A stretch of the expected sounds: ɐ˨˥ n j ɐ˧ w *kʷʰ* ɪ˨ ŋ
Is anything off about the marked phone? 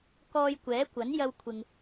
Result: no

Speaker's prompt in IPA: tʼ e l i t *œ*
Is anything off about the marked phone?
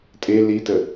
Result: yes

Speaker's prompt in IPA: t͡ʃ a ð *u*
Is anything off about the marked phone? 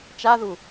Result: no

